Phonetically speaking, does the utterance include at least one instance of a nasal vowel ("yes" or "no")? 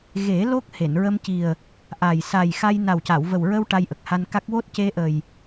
no